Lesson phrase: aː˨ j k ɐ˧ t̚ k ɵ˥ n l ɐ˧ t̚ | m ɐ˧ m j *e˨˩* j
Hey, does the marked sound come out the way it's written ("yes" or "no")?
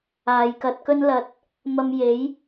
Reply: no